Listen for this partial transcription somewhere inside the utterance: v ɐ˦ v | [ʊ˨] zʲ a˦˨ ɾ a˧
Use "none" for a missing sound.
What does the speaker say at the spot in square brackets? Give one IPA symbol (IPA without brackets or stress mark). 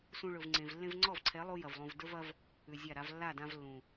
ʉ˨